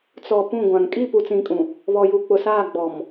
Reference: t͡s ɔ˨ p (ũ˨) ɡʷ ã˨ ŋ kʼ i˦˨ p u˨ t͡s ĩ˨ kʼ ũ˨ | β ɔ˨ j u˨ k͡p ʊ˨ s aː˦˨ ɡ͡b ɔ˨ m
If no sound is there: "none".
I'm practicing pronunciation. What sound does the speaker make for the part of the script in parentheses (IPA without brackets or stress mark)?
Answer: ũ˦˨